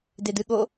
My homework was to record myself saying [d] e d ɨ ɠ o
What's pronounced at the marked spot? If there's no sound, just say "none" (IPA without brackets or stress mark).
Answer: d